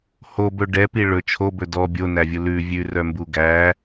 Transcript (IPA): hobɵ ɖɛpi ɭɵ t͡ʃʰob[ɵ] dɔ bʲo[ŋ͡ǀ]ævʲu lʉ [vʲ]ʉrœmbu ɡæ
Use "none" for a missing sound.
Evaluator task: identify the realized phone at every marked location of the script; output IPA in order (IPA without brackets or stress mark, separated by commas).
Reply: ɵ, n, vʲ